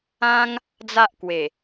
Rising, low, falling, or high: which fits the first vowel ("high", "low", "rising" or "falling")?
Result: high